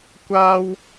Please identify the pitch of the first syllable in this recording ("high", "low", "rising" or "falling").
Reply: high